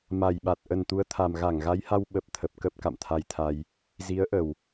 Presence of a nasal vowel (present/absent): absent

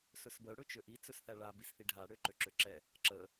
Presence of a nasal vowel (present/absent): absent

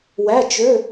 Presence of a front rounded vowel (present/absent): present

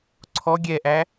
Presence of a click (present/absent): present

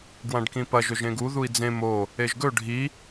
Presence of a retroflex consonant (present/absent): present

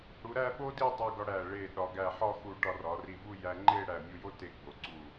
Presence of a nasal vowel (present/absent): absent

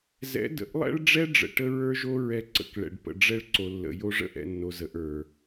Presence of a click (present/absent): present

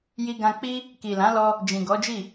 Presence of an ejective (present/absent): absent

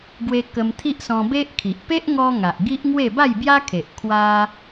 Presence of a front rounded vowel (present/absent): absent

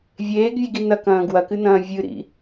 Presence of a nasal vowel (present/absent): present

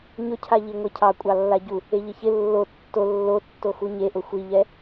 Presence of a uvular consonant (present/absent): absent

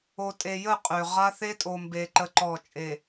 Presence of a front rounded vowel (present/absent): present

